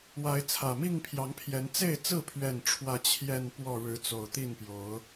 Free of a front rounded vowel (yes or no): yes